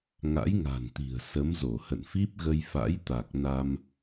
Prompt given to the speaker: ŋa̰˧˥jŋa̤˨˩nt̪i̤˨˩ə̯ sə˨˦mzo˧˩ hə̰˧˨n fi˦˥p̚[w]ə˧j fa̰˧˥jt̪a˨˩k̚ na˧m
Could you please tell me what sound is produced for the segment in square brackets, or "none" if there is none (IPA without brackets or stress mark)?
ɣ